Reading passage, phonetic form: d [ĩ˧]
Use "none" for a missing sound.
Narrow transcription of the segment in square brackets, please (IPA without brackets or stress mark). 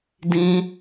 ĩ˧